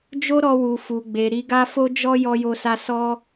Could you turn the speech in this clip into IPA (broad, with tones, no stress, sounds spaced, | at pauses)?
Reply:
d͡ʒ o˦ ɾ ɔ˧ w u˨ f u˨ ɡ͡b e˨ ɾ i˧ ɡ a˦ f o˦ d͡ʒ ɔ˦ j ɔ˦ j o˦ s a˦ s ɔ˦